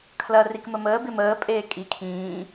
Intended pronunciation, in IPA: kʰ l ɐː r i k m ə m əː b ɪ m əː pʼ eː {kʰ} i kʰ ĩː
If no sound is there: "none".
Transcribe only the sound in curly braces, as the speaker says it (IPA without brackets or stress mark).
kʼ